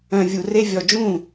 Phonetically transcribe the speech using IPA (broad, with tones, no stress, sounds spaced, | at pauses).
œ̃˨˩ vʲ u˨˩ r e˦ vʲ ɔ˨˩ d͡ʒ ũ˥˩